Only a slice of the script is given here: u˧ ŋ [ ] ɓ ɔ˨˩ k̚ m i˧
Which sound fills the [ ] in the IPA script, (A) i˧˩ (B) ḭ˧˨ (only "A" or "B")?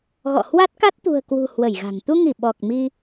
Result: A